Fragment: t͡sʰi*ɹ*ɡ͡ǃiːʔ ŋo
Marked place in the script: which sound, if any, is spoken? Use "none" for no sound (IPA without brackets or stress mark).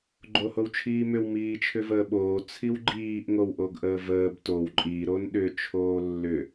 w